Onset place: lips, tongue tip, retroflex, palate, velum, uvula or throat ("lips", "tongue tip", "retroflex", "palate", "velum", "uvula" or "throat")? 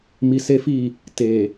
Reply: lips